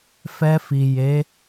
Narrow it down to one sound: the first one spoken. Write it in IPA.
f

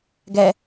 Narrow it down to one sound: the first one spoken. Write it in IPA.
ɡ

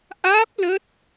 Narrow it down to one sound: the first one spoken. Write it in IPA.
ʔ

